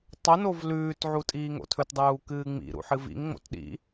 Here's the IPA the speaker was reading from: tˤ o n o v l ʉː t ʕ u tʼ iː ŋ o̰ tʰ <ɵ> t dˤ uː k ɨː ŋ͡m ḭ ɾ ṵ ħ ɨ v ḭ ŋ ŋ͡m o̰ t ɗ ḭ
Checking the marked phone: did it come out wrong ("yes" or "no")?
no